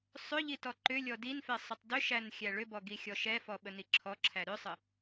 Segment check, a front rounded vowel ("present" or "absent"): present